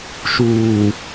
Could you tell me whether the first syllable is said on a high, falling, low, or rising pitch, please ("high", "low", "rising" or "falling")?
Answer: low